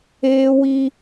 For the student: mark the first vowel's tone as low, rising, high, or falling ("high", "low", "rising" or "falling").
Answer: high